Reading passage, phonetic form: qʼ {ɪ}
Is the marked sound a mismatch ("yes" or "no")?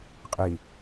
yes